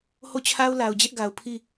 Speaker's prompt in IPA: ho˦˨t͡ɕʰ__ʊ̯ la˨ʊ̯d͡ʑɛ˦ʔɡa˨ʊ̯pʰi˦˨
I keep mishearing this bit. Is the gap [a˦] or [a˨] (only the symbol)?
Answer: a˦